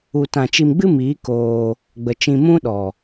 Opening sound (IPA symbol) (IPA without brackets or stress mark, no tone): u